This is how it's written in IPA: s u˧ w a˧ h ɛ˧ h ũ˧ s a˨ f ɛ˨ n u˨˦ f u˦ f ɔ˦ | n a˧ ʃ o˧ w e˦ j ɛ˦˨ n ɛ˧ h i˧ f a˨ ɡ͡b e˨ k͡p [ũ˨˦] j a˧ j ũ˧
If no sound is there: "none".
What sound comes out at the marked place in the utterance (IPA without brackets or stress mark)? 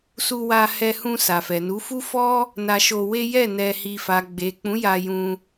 ũ˨˦